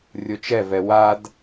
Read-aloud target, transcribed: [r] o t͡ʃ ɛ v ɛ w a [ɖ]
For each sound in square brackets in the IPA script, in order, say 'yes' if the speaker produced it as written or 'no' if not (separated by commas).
no, no